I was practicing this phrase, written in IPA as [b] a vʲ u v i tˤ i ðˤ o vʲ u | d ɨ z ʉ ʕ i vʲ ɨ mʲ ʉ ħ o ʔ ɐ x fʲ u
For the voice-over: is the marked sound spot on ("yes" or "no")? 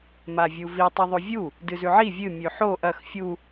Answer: no